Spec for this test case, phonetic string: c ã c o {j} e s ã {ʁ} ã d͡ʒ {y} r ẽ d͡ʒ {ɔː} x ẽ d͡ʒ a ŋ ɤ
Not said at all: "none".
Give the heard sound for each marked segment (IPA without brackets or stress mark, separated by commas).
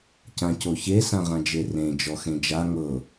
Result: ç, ʁ, e, ɔ